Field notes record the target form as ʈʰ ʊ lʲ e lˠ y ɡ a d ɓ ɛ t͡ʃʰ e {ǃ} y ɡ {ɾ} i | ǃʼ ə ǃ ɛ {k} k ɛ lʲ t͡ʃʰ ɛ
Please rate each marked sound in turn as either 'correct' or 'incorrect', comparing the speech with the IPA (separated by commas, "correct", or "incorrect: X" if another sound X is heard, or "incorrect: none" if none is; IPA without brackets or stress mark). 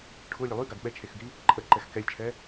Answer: incorrect: x, correct, incorrect: x